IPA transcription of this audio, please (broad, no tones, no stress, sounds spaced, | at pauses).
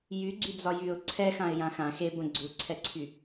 j y ɡ͡ǀ y d͡z ɒ j y ʊ̯ ǀʰ ɛ x ã ɪ̯ j ã x ã x e b ə̃ ɡ͡ǀ u ǀʰ ɛ ǀʰ y